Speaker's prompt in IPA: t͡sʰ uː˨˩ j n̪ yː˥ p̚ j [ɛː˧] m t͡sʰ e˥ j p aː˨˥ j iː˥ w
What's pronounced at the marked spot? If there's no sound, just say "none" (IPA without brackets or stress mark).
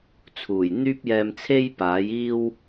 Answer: ɛː˧